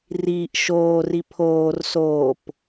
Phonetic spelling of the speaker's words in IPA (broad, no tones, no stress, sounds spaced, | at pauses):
r iː ʔ ʃ oː r i pʰ oː r s oː p